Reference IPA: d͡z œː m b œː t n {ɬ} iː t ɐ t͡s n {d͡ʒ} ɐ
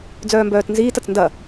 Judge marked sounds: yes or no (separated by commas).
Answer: no, no